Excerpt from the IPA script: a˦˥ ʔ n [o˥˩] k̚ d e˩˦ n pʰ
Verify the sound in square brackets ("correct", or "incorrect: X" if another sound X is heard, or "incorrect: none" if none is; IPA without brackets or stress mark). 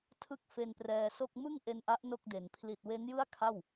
correct